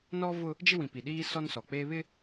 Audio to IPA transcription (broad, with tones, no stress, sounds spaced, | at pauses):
n ɔ˦ v ʊ˦ | d͡ʒ ɪ˦ w ĩ˨ p i˨ ɗ iː˦ s ɔ˦ n s ɔ˨ k͡p e˦ β ɪ˦